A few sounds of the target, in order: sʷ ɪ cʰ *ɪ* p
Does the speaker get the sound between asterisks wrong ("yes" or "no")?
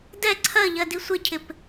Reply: no